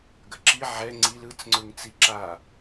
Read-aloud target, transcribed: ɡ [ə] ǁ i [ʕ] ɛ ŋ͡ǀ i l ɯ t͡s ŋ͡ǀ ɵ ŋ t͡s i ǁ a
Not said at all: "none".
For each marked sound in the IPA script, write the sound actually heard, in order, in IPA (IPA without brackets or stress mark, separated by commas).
ə, ʕ